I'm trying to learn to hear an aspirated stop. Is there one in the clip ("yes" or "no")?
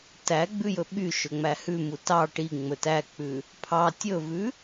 yes